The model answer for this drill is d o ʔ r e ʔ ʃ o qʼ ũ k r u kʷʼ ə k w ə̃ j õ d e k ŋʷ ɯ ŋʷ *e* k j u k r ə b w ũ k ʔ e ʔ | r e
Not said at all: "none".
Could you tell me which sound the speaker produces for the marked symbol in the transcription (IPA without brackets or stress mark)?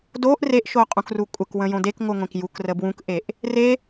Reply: ẽ